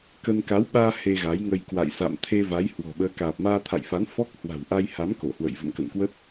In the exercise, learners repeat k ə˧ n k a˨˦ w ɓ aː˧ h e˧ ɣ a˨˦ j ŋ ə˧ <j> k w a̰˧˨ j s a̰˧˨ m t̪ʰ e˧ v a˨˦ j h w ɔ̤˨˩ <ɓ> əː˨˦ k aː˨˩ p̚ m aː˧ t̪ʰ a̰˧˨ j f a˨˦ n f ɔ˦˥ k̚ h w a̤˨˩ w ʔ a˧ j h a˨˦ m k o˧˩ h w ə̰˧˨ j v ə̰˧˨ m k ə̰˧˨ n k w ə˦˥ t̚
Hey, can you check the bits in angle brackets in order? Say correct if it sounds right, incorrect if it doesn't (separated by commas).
correct, correct